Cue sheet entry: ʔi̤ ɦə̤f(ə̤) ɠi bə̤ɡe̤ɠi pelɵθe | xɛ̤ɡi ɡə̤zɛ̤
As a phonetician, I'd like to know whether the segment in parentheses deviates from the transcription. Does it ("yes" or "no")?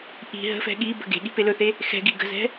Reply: yes